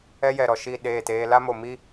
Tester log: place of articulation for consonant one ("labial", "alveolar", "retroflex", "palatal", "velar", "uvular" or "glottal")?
palatal